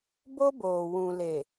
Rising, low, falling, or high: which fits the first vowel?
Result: high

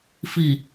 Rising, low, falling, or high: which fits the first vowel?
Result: low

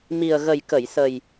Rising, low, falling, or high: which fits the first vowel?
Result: low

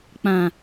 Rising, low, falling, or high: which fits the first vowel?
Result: low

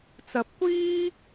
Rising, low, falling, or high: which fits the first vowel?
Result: rising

